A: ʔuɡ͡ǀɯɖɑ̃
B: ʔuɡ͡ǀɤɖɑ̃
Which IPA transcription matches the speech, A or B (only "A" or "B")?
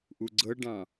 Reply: B